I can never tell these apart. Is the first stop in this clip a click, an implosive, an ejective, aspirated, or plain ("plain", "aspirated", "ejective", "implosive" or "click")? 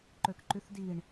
click